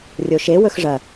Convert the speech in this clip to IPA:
rʲoʃe wɵxʐɐ

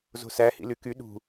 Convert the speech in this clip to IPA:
zo̤sæ hḭlyky ɗṳ

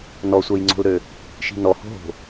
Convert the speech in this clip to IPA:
nɔsʷœjŋ͡ǀo̤lɾø | ʃi̤nɔho̤ɦo̤

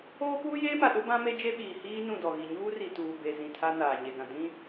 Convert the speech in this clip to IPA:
oː˦puː˦jeː˦ma˨ ɗʊ˦bã˦me˦ d͡ʒe˦ɓiː˨ hiː˦ nũ˦˨dɔ˨ɣi˨ ɲuː˦ri˨ tuː˨be˨ zĩ˨ tʰa˦naː˨ ɲe˨ɡã˨ dĩ˦

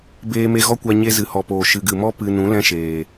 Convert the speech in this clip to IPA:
beː˧me˧ɣɔ˦kʷa˧ ɲe˧zɨ˨hɔ˨poː˨ ʃɨ˨ɡɨ˨mɔ˦ pɨ˧ nũ˨˦lɛ̃˦ʃeː˨

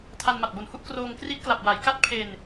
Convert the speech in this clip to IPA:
tʰa˧nma˨˩t̚bo˨˩nhu˥˩ʔ kroː˧ŋkri˦˥t̚kla˨˩p̚ wa˩˦j ka˦˥t̚pʰe˧n

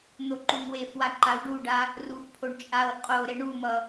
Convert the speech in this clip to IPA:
n̪oǃuŋwefwa ǃawɖuɖa | rufpʰoɳ t͡ʃʼaw qʼoɾe ɳumʌ

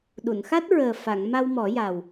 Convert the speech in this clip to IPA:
ɗu˨˩˨nxa˦˥t̚ɹəː˨˩ fa˨˩˨ŋ ma˧wmɔ˨˩˦ja˨˩w

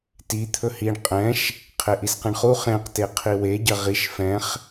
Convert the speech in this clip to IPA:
ti t̪ʰɵhiɳ qʼɛ̃ʃ | qʰeʔisqɛ̃ɳχu χẽqte qʰiwe ɟɐʁiʃ fɛ̃χ

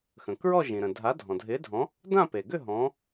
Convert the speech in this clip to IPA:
xə̃˩kɹɔ˥˧ʒĩ˩ɾə̃˩ dʱa˨˥dʱɔ̃˩dʱɪ˨˥dʱɔ̃˨˥ | dã˥˧pe˩ɡʏ˥˧ ɦɔ̃˨˥

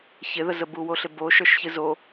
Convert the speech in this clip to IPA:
çɪðəzə buwoɬɪbo ʃə˞ʃçɨzo

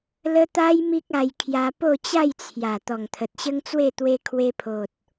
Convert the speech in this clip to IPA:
lə˦ t̪a˦j mi˦k̚a˧j kʰja˧ po˥˧t͡ɕa˥˧jt͡sʰja˨˩ t̪ɔ˨˩ŋt̪ʰə˨t̚ɕə˦ŋt͡swe˥˧ t̪we˧ kʰwe˧pʰo˨t̚

